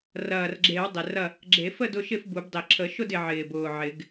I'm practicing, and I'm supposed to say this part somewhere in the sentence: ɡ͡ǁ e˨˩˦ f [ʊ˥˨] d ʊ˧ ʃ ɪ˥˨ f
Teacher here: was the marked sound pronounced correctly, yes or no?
no